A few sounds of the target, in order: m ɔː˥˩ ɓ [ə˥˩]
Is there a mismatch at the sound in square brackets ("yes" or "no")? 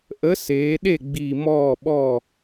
yes